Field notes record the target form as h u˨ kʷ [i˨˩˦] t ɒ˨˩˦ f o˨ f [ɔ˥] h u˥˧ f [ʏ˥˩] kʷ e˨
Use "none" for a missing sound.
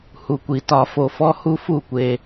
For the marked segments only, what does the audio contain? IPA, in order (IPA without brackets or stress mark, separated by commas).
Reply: i˨˩˦, ɔ˥, u˥˩